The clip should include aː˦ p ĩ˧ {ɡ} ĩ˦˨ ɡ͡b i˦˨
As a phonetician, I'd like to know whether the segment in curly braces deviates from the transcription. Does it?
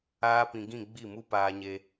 no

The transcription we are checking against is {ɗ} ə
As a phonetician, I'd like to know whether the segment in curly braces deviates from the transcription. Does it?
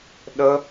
no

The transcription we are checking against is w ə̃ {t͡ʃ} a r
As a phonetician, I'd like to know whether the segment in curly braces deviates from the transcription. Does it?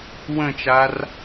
no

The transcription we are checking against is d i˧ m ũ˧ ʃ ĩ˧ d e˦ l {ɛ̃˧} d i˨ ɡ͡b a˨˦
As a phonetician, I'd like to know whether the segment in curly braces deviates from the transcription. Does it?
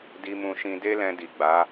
no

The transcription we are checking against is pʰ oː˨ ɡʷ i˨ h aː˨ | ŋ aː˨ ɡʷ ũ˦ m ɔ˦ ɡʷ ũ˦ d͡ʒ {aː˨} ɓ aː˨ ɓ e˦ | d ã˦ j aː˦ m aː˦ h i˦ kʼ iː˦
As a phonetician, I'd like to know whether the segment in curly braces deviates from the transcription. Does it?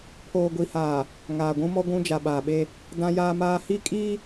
yes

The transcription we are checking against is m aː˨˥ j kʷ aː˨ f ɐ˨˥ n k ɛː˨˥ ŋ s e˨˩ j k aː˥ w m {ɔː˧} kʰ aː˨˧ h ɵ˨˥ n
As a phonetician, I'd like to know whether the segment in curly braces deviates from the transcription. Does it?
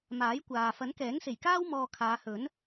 no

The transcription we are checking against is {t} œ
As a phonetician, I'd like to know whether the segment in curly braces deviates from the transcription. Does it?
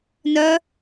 yes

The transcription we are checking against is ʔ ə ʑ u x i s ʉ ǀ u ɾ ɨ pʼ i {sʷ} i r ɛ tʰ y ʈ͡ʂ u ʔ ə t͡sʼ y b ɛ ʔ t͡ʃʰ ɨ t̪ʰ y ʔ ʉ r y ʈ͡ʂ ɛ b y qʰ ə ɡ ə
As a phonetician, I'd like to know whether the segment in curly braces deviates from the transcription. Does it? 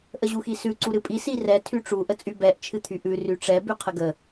yes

